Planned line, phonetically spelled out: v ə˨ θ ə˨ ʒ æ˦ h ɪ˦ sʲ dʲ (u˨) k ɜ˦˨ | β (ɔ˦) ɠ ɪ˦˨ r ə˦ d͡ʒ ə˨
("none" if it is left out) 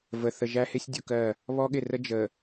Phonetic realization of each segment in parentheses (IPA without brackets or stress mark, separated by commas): u˨, ɔ˦